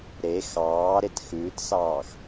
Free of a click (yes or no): yes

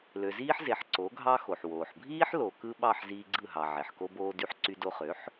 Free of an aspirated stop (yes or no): yes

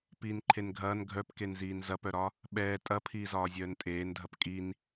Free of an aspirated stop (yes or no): no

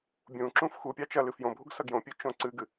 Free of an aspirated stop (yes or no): yes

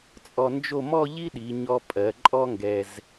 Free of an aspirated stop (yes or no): yes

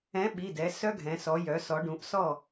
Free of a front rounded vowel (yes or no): no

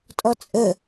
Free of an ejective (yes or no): no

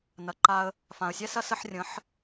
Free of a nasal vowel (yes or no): no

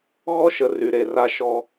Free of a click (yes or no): yes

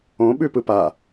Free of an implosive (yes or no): no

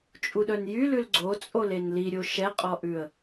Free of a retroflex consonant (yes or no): yes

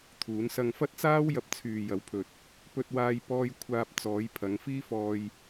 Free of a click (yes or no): yes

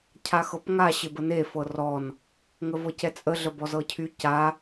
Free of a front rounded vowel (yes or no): no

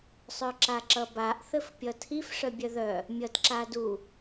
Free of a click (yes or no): no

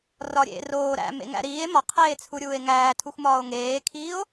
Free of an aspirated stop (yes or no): no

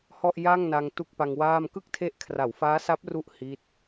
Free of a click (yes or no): yes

